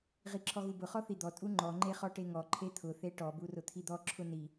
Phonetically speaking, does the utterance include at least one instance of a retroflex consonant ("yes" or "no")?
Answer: yes